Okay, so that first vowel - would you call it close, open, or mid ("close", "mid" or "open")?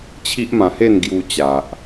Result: close